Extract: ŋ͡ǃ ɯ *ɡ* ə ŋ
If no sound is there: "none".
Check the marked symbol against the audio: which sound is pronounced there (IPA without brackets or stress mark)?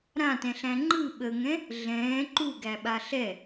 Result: ɓ